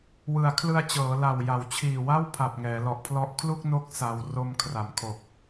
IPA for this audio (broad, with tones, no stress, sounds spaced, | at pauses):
w ɯ˩˦ a̯ kʰ l ɯ˧ a̯ t͡ɕ ɤː˩˦ l a˨˩ w j a˩˦ w t͡ɕʰ iː˨˩ w a˥˩ w pʰ a˨˩ p̚ ŋ ɛː˩˦ l ɔ˨˩ ʔ pʰ l ɔ˦˥ ʔ kʰ l u˥˩ k̚ n o˦˥ k̚ s a˧ w r o˧ m kʰ r a˨˩ m kʰ o˨˩ k̚